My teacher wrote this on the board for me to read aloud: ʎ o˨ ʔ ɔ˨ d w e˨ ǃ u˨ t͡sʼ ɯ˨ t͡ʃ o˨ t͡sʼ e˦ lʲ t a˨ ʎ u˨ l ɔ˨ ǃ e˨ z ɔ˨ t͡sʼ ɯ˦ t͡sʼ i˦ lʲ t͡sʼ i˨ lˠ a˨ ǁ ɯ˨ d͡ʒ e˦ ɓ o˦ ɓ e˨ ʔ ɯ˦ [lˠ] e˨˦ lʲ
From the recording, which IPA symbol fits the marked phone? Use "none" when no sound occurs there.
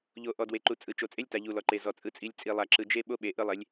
lˠ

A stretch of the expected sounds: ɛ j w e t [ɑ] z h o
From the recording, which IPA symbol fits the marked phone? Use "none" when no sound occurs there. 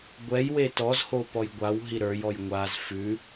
ɔ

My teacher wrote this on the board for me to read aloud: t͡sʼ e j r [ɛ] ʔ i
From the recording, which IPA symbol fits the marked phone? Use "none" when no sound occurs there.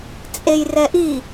ɛ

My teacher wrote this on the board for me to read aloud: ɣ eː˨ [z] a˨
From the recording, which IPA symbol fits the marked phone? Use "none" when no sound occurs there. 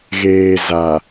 z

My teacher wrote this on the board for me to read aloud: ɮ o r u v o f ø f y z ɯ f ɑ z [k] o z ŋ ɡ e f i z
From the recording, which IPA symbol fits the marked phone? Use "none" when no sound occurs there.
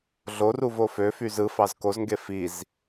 k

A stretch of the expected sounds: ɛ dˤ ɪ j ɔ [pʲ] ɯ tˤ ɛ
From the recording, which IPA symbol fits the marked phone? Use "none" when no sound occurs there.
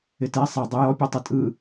pʲ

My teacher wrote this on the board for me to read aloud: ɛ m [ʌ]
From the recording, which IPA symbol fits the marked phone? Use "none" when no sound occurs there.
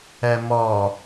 ɔ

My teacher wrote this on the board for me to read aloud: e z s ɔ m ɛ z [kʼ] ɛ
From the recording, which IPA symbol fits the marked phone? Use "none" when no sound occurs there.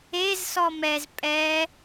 pʼ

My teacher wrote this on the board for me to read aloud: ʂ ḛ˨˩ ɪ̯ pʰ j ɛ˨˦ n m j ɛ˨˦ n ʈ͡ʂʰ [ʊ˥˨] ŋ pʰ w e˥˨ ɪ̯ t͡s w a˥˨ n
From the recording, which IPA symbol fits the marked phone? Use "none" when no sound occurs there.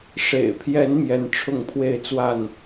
ʊ˥˨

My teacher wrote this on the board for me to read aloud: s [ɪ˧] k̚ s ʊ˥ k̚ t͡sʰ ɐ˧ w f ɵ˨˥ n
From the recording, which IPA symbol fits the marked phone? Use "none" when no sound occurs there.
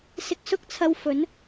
ɪ˧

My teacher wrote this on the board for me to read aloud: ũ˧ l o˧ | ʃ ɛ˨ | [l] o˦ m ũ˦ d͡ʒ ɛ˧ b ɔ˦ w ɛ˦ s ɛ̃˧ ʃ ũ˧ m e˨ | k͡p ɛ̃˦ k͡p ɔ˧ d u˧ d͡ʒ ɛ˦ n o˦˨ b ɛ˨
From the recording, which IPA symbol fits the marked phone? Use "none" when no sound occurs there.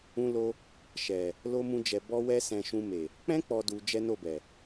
l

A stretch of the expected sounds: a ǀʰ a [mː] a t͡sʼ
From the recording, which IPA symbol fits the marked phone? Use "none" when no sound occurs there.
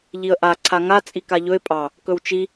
ŋ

